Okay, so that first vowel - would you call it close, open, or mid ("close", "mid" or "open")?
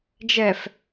mid